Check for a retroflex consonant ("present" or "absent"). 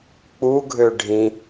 present